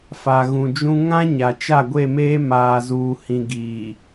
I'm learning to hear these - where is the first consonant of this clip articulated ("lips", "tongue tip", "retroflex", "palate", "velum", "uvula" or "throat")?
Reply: lips